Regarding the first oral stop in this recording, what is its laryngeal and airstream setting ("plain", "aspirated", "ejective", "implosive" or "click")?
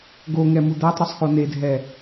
plain